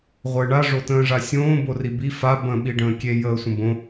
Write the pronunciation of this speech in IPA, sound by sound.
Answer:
ʁʷəːɳa ʐotə̃ːʐasʲõː boribi fa bə̃ ɓiɖə̃ːkʲe jəːsʷə̃bõ

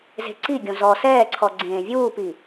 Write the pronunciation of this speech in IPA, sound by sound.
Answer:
ze̤ǀiɡʲõ zɔ sɛːǀʰɔ ɡ͡ǀẽːvʲuːpi

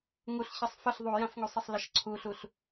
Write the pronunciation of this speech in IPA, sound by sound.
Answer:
ŋuɬ çʌsˤfəɬ ðˤujãfŋusˤəsˤ ləʃǀʰuɬuɬ

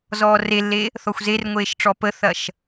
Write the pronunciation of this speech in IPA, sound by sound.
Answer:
zɔːrelːe | θɔxʷzerŋʷeːʃʈ͡ʂɔ pəθɐʃ

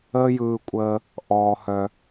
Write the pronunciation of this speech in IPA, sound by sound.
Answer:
əː˦jɯː˧kʷʼəː˧ | ʔɔː˧ hœ˧

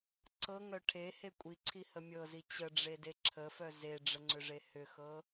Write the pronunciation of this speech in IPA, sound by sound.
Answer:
ǀɤŋœ ʈʰehe kʷʼiǀʰihə mʲɤzi t͡ɕəɖ͡ʐede ǁʰəfœ zeɖ͡ʐəŋ͡ǀʏʐe hʏxɤ

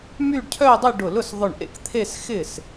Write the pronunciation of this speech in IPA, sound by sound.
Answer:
my˥˧ɖcʰœ˥˧ dˤʏ˥˧ ɖʊ˧˩lʊ˥˩sðˤʊ˧˩ɳʔḛ˥˩k t̪ʰe˥˧sxɪ˥˩s

